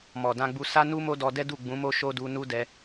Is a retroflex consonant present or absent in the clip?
absent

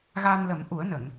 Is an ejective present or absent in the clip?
absent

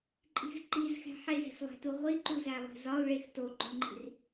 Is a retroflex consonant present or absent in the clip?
present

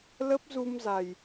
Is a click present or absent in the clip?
absent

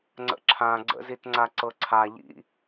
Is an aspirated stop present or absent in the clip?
present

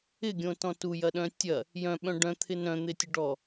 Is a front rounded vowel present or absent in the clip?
present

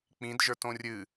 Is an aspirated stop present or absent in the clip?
absent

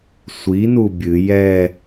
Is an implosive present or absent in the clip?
absent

